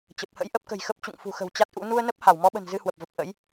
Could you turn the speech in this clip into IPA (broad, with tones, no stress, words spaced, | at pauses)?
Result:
t͡ɕə˨˩p̚hə̰˧˥j ʔə˦˥p̚kə̤˨˩jxə˦˥p̚ t͡ɕṵ˧˨ŋfṳ˨˩xə̤˨˩w t͡ɕa˦˥t̚ʔṵ˧˥ nu˧ə̯nə˦˥p̚ ha˧˩wmɔ˨˦ɓə̤˨˩n zɨ˧hwə˨˩p̚və˨˩p̚ ʔə̰˧˥j